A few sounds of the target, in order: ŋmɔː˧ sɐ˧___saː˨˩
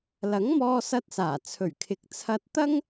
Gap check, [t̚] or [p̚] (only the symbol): t̚